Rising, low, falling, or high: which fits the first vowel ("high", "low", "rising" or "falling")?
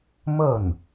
falling